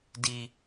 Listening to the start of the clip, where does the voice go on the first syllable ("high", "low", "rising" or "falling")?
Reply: low